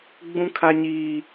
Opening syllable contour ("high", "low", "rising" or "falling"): high